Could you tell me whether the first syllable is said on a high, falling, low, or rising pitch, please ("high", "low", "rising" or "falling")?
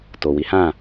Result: low